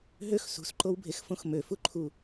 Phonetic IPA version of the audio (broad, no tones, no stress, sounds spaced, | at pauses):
ɦ ø x s ṳ s ǃ o w bʱ e x f õ x m ø f u ǃʰ u